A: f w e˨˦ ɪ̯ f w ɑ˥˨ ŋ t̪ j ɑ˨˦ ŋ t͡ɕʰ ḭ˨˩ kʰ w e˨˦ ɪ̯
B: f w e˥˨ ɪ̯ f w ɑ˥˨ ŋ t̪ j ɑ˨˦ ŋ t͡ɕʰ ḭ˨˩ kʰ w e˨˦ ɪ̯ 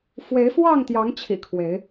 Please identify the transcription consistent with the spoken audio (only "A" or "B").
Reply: A